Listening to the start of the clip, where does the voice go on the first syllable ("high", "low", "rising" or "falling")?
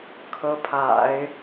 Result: rising